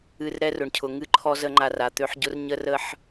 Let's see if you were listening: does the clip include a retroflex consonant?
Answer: yes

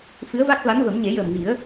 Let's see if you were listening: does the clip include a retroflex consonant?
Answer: no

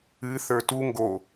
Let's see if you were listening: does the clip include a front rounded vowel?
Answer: no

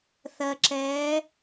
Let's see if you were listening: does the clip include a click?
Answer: yes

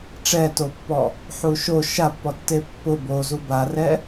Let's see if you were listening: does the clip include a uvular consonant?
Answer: no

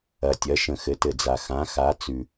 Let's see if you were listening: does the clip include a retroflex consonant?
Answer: no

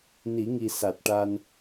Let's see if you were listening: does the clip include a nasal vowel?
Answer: no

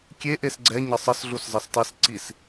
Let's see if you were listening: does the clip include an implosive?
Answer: no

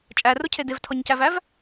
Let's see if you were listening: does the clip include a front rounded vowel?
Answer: no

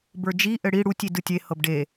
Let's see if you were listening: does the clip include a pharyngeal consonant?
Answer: no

